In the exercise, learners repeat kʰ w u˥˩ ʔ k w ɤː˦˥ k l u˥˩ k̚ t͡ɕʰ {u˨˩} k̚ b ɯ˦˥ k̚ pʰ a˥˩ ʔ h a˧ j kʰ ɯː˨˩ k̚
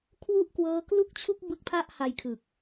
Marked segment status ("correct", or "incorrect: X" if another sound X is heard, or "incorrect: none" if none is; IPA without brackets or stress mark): incorrect: u˥˩